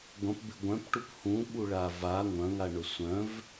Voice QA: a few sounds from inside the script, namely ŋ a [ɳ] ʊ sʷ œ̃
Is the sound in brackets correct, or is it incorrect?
correct